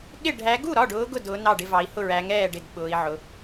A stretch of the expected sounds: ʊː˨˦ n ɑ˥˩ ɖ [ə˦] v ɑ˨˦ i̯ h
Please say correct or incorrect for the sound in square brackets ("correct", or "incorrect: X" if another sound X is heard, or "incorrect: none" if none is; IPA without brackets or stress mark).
incorrect: ɪ˦